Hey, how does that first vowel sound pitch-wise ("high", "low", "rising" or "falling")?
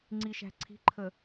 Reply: low